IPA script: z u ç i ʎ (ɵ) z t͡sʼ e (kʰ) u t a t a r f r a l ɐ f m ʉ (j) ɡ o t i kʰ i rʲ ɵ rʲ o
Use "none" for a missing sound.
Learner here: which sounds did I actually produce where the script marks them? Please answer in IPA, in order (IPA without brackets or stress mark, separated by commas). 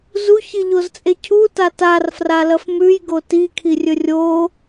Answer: o, cʰ, j